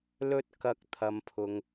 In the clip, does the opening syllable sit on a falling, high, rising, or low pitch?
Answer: high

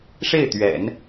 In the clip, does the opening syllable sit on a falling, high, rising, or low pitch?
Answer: falling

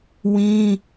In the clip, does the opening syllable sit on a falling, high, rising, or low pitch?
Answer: high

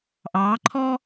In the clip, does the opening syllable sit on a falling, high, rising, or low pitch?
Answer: rising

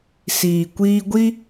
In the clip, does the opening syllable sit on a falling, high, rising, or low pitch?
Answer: low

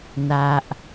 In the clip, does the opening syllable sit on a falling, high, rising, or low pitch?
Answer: low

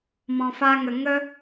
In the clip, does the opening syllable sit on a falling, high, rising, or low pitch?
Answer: low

